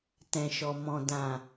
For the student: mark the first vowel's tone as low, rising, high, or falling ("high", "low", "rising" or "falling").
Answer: low